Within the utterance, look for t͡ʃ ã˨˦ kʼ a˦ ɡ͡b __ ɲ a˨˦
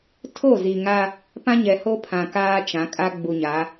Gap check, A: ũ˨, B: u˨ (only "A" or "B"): B